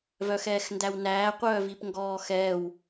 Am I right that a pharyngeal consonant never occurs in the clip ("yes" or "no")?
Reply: yes